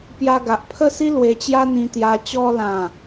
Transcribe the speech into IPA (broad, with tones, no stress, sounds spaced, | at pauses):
p j a˧ ɡ a˨ ʔ pʰ ə˥˧ s i˦ l w e˧ t͡ɕ j a˦ n̪ ĩ˧ t̪ j a˧ t͡ɕ ɔ˧ l ã˨˩